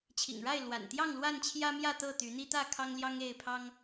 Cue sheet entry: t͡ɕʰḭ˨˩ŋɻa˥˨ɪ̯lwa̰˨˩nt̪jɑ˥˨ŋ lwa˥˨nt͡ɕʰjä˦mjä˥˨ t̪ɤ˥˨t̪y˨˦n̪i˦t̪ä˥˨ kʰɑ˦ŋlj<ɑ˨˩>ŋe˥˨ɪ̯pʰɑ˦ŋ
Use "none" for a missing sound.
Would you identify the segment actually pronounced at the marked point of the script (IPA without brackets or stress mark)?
ɑ˦